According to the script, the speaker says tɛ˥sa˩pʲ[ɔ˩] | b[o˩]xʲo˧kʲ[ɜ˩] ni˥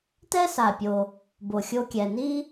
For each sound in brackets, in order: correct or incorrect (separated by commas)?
incorrect, correct, incorrect